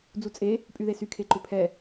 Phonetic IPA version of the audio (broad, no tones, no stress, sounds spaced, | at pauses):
d͡z u t͡sʼ e | pʼ y ð e s y kʰ e ǃ ʏ pʰ ɛ